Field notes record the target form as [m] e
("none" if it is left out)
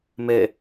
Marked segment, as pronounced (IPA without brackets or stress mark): m